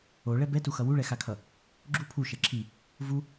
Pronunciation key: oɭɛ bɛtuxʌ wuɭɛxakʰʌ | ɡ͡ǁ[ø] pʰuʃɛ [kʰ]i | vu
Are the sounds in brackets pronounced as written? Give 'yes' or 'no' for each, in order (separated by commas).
no, no